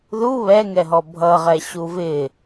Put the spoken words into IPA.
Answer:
ð u β ɛ ŋ ɛ ɦ ɔ bʱ ʌ ʁ ɛ ɕ u v ɪ

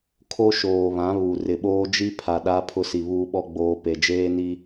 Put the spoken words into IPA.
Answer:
kʰ o˦ ʃ oː˨ β ã˨˦ β u˨ r ɪ˨ ɓ oː˦ d͡ʒ i˦ pʰ a˨ ɗ a˦ pʰ ʊ˦ s i˨ β uː˦ ɓ ɔ˦ ɡ͡b oː˦ p e˨ d͡ʒ eː˦ n i˦

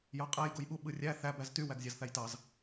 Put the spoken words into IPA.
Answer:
j ɑ qʼ æ j ɡ o j ɓ u ɓ ɯ rʲ æ θ æ b æ z t y w æ ɡ zʲ ɑ z θ æ j t ɑ z

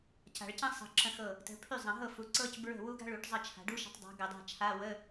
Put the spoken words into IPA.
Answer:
c a̤˨˩˦ ɭ c ə̃˥ sˤ ə̤˧˩ ǁ ə̃˧˩ x ɤ˧˩ | t ə̤˨˦ pʰ y˥˩ zˤ ə̃˨˩˦ ɦ ɤ˥˩ f u˨˦ ǀ ɤ˥ c b ɹ ə̤˥˩ w u˥ ɡ a̤˥ ɭ u˨˩˦ ʈ zˤ ə˥˩ t͡ʃʰ a̤˨˦ ɖ u˥ ʃ ə̤˨˦ tˤ dˤ a̤˨˦ ɡ ə˨˩˦ dˤ a̤˥˩ t͡ʃʰ a˧˥˧ w ə˧˥˧

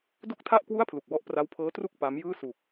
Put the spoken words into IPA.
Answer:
d o˥˩ k̚ tʰ a˥˩ ʔ k w u˥˩ a̯ pʰ l u˨˩ k̚ w ɔ˦˥ ʔ p r a˦˥ w pʰ ɤː˦˥ t r u˥˩ k̚ p a˦˥ m j ɯː˥˩ s u˨˩ k̚

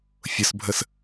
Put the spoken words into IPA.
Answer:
fʲ ʊ s bʱ ə s

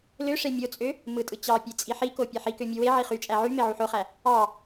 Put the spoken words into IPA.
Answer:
l ø ʂ e mʲ o t͡sʼ ø | m ɯ tʼ ɯ t͡ɕ ɑ pʲ e t͡sʼ i ħ i k o pʲ e ħ i k ø mʲ u w e ʕ i χ y t͡ʃʼ æ ʕ y m e ʕ u ħ o χ æ | ɑ

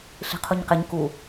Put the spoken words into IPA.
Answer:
ɬ i̤ qʰ u ɲ q ɪ ɲ k u

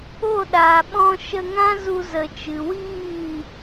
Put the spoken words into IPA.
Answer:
o˦˨ ɗ aː˨ ɓ ɔ̃˧ ʃ ə˧ ŋ ã˦ z u˧ z ə˨ t͡ʃ ɨ˨ w iː˦˨

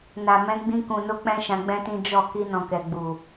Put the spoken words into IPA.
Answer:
n a˨ m ɛ̃˨˦ ɡ͡b ĩ˧ k ũ˨ n o˧ k͡p ɛ̃˦ ʃ ã˧ ɡ͡b ɛ̃˦ t ĩ˦ d͡ʒ ɔ˦˨ k i˧ n ɔ̃˨ k ɛ˨ ɡ͡b u˨

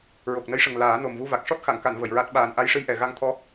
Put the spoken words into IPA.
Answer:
ɹ o˨˩ k̚ n ə˧˥ j ʂ ə˨˩ ŋ l aː˨˩˦ n o˨˩ m v u˧ v a˨˩ k̚ ʂ ɔ˦˥ t̚ x a˨˩˨ ŋ k a˨˩˨ n v ə˨˩˨ j ɹ a˦˥ t̚ ɓ aː˨˩ n ʔ a˧ j ʂ ɨ˧ j ʔ ɛ˨˩ ɣ a˧ ŋ t̪ʰ ɔ˧˥

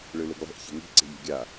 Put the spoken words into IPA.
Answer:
ɭ ɯ l ɯ ɡ lˠ e̤ ʔ ç e̤ ŋ i̤ ǀ e̤ ʎ e̤ ɡʲ a

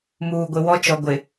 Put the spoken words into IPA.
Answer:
m uː˨ ɡʷ ɪ˨ w ɔ˦ t͡ʃ ɔ˨ ɡʷ ɪ˨

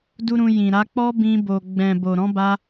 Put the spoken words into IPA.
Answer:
d u˦ ɾ ũ˧ j ĩ˨ ɾ a˨˦ k͡p ɔ˦ b ĩ˧ b o˨ ɡ͡b ɛ̃˨ b o˨ ɾ ɔ̃˨˦ b a˧

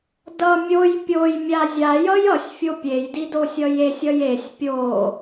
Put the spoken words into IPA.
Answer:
d ʌ mʲ o j pʲ o j mʲ a zʲ a j ʌ j ʌ sʲ fʲ o pʲ e j d i d o sʲ ʌ j e sʲ ʌ j e sʲ pʲ o

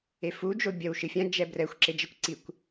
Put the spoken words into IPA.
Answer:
e f u d͡ʒ o bʲ ɐ w ʃ ɨ fʲ ã d͡ʒ ɛ b r ɛ xʷ ǁ e d͡ʒ ɐ kʷ ǀ i kʷ

